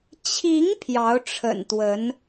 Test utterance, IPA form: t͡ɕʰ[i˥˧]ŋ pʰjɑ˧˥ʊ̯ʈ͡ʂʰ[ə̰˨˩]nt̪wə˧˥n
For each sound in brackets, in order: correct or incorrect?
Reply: incorrect: i˧˥, correct

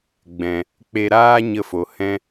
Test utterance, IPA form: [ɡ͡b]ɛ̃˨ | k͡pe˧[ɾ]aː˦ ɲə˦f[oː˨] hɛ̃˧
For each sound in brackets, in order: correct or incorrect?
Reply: correct, correct, incorrect: o˨

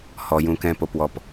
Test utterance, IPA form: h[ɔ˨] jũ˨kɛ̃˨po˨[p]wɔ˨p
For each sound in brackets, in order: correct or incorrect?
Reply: correct, correct

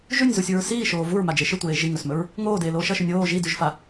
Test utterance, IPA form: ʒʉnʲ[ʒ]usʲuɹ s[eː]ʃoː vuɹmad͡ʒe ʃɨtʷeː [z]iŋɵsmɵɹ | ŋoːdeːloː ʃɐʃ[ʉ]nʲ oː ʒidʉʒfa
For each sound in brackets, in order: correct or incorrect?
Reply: incorrect: z, incorrect: iː, incorrect: ʒ, correct

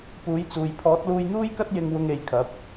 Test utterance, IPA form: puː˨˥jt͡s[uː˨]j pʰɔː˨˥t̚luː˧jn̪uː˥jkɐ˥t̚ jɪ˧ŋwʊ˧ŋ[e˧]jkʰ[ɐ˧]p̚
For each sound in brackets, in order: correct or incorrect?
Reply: correct, incorrect: e˨˧, incorrect: ɐ˨˥

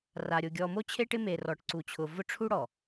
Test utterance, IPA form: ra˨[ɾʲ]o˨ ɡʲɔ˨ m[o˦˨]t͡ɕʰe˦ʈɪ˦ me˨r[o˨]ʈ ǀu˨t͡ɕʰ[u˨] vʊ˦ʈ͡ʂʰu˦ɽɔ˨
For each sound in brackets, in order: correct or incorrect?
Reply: correct, incorrect: o˦, incorrect: ɔ˨, incorrect: ʊ˨

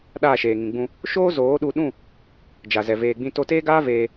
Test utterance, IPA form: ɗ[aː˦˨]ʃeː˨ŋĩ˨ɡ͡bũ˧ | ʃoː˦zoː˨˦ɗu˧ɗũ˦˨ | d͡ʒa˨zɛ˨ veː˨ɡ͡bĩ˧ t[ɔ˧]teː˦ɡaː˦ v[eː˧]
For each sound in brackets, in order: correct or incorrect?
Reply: correct, incorrect: o˧, correct

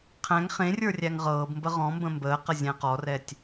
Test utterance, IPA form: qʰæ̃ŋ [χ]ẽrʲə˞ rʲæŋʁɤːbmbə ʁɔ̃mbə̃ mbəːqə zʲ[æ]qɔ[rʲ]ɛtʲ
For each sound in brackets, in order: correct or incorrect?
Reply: correct, incorrect: æ̃, incorrect: r

